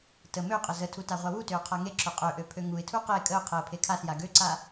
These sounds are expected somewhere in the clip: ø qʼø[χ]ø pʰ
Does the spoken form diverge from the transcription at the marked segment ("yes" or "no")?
yes